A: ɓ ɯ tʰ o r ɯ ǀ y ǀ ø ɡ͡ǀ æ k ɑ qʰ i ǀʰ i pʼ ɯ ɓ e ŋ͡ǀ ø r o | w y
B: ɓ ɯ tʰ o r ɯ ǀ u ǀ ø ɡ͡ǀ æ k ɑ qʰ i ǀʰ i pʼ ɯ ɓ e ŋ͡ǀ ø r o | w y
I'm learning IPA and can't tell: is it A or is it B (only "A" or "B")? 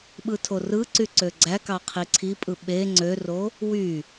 A